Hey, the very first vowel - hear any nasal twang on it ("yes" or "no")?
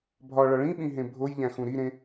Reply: no